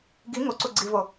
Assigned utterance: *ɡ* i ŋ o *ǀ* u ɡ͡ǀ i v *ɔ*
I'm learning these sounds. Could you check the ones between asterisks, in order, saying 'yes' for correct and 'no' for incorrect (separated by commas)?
yes, yes, no